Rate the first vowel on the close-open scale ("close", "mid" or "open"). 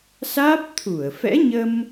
open